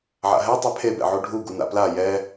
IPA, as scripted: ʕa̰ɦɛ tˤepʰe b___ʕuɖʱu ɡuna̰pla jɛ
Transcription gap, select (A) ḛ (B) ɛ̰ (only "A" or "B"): B